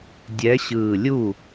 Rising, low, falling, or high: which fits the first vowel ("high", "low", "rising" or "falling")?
rising